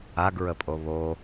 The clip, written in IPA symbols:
a ɡ ɹ ə pʼ o β o

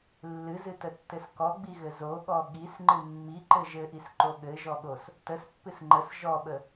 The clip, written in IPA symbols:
lː ɨ z ɨ t ə tː ɘ s k ɔ ɡ͡b i ɣ ɘ z o ɠ ɔ ɠ i s ŋ͡ǃ ɨ mː i ǃ ɘ ʒ ɘ ʔ i s ǃ o ɠ ɘ ʒ ɔ ɠ o s | t ə s pː ɨ s ŋ͡ǃ ə s ʒ ɔ ɓ ə

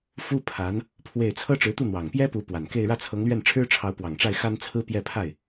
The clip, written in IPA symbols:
f u˥ pʰ a˧˥ n | pʰ w e˥˩ ɪ̯ t͡sʰ ɤ˥ ʈ͡ʂ ɻ̩˧˥ t̪ u˥˩ n̪ w ɑ˨˩ ŋ p j ɛ˥ p u˧˥ p w a˨˩ n k e˥˧ ɪ̯ ɻ ä˥˩ t͡sʰ ɤ˧˥ ŋ l ɥ ɛ˥˩ n ʈ͡ʂʰ ɻ̩˥ ʈ͡ʂʰ ɑ˧˥ ʊ̯ p w ɑ˨˩ ŋ ʈ͡ʂ a˥˩ ɪ̯ x a˥ n t͡sʰ ɹ̩˥ p j ɛ˥˧ pʰ a˥˩ ɪ̯

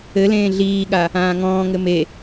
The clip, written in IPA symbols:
ɘ l ẽː ɮ iː ɠ a | ãː ŋ ɔ̃ː ŋ ɘ m e

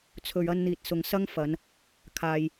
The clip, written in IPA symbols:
t͡sʰ ɵ˨ ɥ ɐ˧ n n̪ iː˨ t̚ s ʊ˨ ŋ s ɐ˥ ŋ f ɐ˨˧ n | kʰ aː˨ j

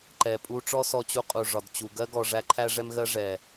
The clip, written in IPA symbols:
ǃ ɛ˨ pʼ u˧ ʈ͡ʂ ɔ˦ s ɔ˧ t͡ɕ u˧ qʼ u˨ ʐ ɒ˨ d t͡ɕ u˨ ɡ ɜ˦ ɡ ɔ˨ ʐ æ˧ ǃʰ æ˧ ʐ ɛ˧ m ɣ ɜ˧ ʐ ɛ˨

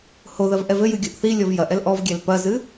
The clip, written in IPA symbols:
h o ð ɐ v ʔ ɛ v ɘ j ɨ ɡʲ u ʔ θ i lʲ ɔ v j ɐ ʔ ɛ l ʔ ɔ v ɡʲ ɛ l p ɐ z ɨ

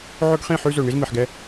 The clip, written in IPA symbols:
ʕ ɵ˦ ɡ χ ĩ˦˨ ħ ʉ˦ z ɵ˨ ɳ i˦ z m i˨ ħ ɡ ɛ˦

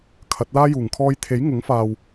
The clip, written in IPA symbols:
kʰ ɐ˨˥ t̚ l aː˥ j uː˨˩ ŋ kʰ ɔː˧ j t̪ʰ e˨˥ j ŋ ʊ˨˥ ŋ f aː˨ w

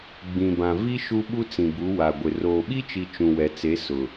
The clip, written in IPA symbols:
ɡ͡b ĩ˨ b ã˨ v i˦ ʃ u˦ ɓ u˦ t͡s ĩ˨ b u˨˦ w a˨ ɡʷ ɪ˨ r oː˨ ɓ i˦ t͡ʃ i˨ t͡ʃ ũ˨ w ɛ˨ t͡s e˨˦ s ʊ˨

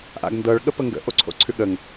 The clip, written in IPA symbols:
ʔ a̰ ɡ n d ɤ ɭ ɠ ə p ə ŋ ɡ ə̰ ʔ o ǀʰ o̰ ǀʰ ʉ ɠ ə ŋ

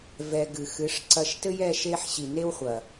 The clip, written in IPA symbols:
v ɛ˧ ɡ ɨ˨ x ɨ˨˦ ʂ ǀ ɐ˧ ʃ t ɘ˦ j ɛ˦ ʃ e˦ ħ ɕ i˨ n e˦ w χʷ ɐ˨

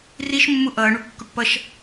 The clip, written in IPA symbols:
r i ʃ mː u ʔ ʌː ɳ u kː u ʈ p ʌ ʃ

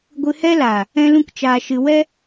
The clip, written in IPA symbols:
ɡʷ ɨ˧ h ɛ˦ l aː˨ | ɛ̃˦ l ũ˦ k t͡ʃ aː˧ ʃ ɨ˧ w ɛ˦

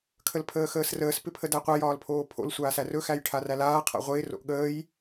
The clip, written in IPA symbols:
kʰ ə l pʰ əː x əː s r əː s p ɪ pʰ ə d æ qʷ a j ɒː l pʰ oː pʰ o̰ l sʷ aː s æ r ɵ x æ j ʈʰ a r æ l aː qʰ a̰ ʁʷ ɪː r o̰ ʔ ɠ əː j

